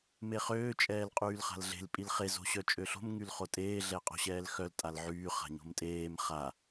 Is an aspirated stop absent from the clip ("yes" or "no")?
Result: yes